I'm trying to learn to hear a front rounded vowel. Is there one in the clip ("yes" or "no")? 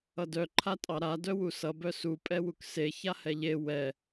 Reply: yes